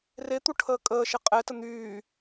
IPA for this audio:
r e t̪ u ʈʰ əː kʼ əː ʃ e qʼ ɛ t ə n̪ yː

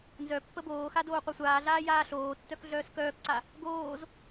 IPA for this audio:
n z œ pː ə b oː x a d oː qʷ œ sʷ aː ɮ aː j aː ɬ oː tː œ k ɮ œː s k œː k ǀ a | ɡ oː z

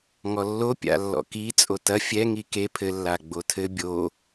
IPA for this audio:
ŋ ɔ lː o pʲ a̰ lː ɔ̰ k i t͡sʼ o t ɐ fʲ ɛ ŋ i k e pʰ ɘ lː a ɡ͡b o tʰ ɘ bʲ o

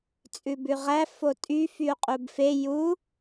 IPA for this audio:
t͡sʼ ʉ b ʉ ʁ æ f o tʼ y f y u̯ qʼ u b f e j u

